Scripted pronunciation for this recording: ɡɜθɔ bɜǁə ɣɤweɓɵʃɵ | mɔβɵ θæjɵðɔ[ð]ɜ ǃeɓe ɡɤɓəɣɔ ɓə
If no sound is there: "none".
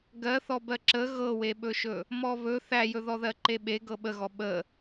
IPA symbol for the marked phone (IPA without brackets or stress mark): ð